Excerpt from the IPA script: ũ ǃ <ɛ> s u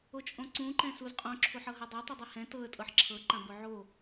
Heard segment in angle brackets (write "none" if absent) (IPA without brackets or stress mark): ɛ̃